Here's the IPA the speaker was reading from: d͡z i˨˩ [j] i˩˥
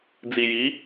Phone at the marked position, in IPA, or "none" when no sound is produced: j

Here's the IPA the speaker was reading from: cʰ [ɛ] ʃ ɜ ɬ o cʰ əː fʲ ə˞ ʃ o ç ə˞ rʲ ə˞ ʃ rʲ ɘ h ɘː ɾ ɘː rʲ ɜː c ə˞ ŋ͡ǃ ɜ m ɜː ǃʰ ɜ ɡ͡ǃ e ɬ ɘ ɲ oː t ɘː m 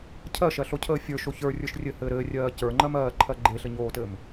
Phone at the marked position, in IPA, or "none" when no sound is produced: ɜ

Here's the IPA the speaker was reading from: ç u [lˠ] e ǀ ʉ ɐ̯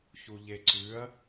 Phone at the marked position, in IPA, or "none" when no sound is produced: ʎ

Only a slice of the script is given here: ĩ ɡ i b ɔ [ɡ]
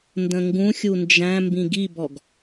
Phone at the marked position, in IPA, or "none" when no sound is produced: ɡ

